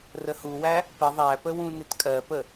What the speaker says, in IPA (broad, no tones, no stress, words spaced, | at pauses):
rəhuwæ | pə ðˤæpə wũnɪtkʼɜpə